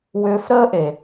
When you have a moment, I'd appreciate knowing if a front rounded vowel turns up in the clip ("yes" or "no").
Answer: yes